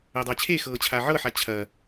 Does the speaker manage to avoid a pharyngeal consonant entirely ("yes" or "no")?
no